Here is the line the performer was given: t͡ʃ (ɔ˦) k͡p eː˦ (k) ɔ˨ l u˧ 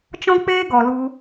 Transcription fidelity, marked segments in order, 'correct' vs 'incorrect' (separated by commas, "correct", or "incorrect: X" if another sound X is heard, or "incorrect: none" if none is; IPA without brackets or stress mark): incorrect: ɔ̃˦, incorrect: ɡ